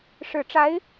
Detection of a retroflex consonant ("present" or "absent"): present